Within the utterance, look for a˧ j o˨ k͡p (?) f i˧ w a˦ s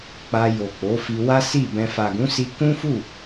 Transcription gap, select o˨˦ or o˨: o˨˦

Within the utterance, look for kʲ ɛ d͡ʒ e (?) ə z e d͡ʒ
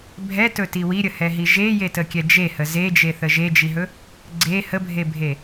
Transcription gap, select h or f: h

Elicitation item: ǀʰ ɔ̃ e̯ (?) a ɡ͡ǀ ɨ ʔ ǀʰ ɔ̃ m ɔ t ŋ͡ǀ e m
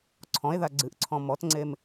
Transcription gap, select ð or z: ð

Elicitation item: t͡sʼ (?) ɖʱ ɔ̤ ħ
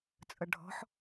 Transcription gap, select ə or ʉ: ə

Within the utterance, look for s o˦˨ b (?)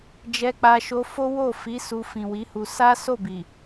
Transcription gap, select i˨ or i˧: i˨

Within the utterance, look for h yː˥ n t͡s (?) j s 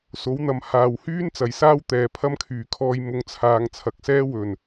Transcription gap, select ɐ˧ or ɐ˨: ɐ˨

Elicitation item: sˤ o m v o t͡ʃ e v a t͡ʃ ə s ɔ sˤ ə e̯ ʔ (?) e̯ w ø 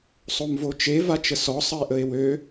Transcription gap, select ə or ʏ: ə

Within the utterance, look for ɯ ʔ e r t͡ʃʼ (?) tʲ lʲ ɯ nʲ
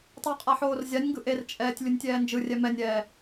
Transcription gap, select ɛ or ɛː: ɛː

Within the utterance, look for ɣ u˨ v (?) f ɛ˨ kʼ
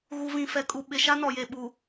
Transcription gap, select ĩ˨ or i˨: ĩ˨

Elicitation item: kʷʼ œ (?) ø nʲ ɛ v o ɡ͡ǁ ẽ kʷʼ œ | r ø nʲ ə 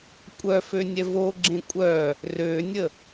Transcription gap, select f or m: f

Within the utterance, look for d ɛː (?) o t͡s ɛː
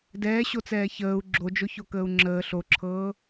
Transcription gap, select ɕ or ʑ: ɕ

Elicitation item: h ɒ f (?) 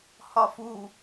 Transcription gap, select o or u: u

